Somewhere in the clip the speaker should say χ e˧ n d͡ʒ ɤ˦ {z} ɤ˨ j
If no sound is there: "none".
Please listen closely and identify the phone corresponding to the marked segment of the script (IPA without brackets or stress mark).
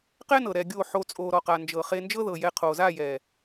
ð